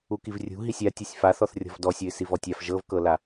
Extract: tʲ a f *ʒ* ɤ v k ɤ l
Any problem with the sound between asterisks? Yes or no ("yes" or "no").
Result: no